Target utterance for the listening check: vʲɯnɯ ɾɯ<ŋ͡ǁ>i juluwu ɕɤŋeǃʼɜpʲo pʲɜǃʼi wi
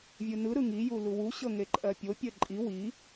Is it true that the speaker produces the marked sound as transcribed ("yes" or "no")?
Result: no